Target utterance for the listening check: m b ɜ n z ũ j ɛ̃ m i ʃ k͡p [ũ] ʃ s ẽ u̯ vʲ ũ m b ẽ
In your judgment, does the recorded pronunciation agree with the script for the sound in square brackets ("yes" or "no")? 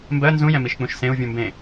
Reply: yes